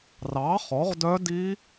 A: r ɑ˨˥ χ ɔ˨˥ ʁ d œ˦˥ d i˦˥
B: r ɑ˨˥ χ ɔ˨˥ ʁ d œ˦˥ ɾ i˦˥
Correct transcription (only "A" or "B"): A